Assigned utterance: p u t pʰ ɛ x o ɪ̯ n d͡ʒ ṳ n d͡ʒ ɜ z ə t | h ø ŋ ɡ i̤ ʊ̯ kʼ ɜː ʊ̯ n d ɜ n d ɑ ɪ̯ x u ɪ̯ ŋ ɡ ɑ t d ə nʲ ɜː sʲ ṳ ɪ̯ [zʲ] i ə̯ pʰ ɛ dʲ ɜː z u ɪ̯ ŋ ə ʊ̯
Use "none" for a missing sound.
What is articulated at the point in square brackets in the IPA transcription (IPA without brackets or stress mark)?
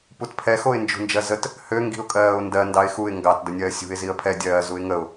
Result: z